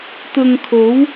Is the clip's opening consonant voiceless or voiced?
voiceless